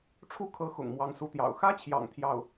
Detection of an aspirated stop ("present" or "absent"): present